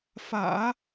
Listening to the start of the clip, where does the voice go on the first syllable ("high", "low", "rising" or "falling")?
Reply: low